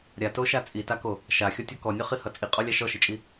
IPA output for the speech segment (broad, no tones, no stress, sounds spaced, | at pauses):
ɾʲ a t o ʃ a t͡sʼ i t a k o | ʃ a xʲ ɔ tʲ ɔ k ɔ nʲ ɔ χ i h ʌ t͡sʼ i qʼ ɔ lʲ a ʃ ɔ ʃ i t͡ʃʼ i